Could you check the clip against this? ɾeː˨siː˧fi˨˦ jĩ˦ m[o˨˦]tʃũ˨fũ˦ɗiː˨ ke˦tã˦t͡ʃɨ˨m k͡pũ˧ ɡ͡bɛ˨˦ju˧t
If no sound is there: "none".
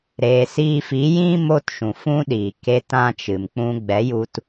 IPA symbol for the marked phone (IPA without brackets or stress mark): o˦